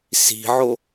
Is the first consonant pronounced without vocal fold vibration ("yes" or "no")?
yes